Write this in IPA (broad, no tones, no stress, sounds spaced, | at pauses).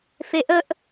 f e ʔ ə ʔ